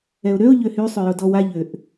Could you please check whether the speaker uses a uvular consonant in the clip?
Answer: no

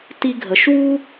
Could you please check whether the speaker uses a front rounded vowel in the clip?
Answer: no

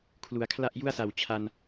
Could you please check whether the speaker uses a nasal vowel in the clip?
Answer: no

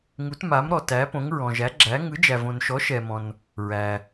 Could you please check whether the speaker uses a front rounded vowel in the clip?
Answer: no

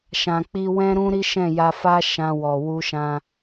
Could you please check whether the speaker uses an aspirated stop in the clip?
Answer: no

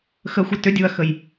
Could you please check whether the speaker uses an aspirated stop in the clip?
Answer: no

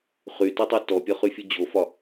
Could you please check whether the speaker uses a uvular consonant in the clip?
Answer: yes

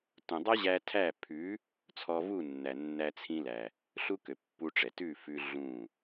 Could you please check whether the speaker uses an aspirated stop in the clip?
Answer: yes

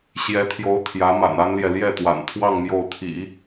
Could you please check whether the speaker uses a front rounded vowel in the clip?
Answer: no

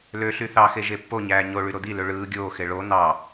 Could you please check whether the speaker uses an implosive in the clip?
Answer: no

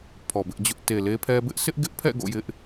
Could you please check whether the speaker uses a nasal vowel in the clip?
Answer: no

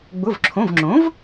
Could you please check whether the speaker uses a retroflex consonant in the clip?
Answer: no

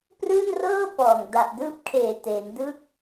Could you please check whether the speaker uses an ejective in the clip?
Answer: no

